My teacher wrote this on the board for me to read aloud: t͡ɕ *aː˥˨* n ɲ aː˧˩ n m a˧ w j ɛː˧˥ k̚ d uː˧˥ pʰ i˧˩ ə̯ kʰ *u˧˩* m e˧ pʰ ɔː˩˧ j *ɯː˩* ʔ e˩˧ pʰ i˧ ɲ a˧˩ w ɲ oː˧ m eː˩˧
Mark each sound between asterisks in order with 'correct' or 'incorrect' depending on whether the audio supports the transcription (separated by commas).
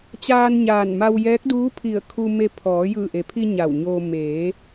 incorrect, incorrect, incorrect